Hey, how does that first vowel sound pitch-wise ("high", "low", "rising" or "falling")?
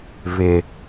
high